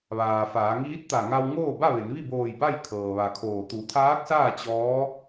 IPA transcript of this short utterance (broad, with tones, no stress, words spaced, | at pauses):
ʋaː˩faː˩˧ŋiː˧˥t̚t̪a˧˩ ŋa˧w ŋoː˥˨ba˥˨ʋe˩˧nʋi˥˨ boː˧˩j ba˥˨j kʰɤː˩ʋa˩ kʰoː˧˩ t̪u˩˧t̪ʰaː˧˥k̚saː˥˨ t͡ɕɔː˧˥